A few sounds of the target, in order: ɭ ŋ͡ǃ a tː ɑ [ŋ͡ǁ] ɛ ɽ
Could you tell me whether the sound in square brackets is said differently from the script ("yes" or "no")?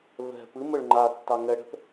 yes